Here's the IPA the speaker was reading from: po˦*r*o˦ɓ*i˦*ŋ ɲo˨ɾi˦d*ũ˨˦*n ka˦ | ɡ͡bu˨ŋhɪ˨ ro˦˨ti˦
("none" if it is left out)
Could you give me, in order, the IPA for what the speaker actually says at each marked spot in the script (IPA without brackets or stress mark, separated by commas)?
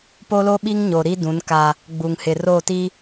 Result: l, i˦, ũ˨˦